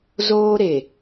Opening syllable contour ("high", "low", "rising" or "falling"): high